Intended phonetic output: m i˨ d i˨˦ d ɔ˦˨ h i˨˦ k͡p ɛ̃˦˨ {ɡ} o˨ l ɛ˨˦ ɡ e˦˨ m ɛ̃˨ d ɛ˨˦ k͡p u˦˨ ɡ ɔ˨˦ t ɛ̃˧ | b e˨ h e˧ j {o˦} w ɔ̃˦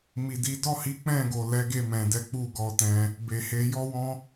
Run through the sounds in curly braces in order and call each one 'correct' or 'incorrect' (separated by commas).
correct, incorrect